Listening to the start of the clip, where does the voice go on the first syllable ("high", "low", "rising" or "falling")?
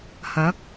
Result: rising